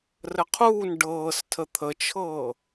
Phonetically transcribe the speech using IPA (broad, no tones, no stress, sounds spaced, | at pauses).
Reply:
r ə qʰ uː n ɖ ɤː s tʰ ə t̪ʰ ə t͡ʃʰ ɤː